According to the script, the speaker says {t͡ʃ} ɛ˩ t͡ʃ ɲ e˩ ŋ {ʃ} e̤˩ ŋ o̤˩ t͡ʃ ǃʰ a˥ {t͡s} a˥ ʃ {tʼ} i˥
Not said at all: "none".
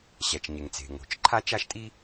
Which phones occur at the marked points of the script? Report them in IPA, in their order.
ɕ, t͡s, t͡ʃ, tʼ

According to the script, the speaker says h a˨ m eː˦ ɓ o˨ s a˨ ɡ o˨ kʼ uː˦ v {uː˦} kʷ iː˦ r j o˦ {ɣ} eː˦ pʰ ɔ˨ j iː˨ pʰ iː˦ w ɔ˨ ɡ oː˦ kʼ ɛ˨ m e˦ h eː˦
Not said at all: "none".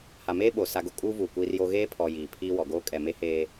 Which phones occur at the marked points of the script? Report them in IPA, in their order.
uː˨, ɣ

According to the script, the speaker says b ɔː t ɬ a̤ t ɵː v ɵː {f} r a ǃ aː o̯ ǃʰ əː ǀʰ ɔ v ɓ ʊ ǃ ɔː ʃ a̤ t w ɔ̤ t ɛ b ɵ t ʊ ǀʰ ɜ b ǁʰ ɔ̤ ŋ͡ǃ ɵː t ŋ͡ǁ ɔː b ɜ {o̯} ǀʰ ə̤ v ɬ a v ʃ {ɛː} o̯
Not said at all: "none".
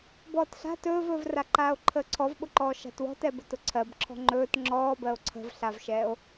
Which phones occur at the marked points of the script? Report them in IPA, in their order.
v, o̯, ɛː

